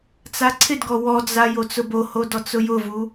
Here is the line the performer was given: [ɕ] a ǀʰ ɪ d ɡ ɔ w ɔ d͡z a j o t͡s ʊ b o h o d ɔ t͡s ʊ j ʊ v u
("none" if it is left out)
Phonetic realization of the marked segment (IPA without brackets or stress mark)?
t͡s